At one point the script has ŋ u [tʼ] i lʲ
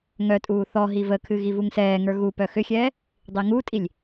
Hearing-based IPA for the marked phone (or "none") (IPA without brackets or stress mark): tʼ